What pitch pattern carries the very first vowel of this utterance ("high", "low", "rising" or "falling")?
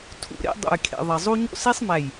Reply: high